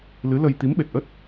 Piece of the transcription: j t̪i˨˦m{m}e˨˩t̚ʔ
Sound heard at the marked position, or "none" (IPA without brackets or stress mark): ɓ